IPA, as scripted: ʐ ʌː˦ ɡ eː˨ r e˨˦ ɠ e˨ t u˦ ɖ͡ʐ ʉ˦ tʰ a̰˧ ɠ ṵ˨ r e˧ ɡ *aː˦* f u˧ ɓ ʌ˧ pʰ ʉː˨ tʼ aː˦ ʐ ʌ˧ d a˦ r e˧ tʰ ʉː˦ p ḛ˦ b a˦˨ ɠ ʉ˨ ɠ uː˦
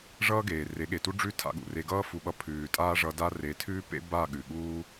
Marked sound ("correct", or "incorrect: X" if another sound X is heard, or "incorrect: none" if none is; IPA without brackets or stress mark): incorrect: ʌː˦